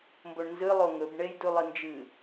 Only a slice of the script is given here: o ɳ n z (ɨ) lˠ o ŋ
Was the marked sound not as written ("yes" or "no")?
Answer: no